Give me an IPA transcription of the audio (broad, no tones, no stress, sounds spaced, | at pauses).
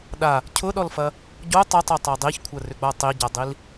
ɗ a | cʰ ʊ ɗ ɔ l f ɐ | ɟ o tˤ ɐ tˤ œ tˤ a dˤ i ç kʷʰ ɐ r ʏ ɡ͡b a tˤ i ɟ a dˤ i l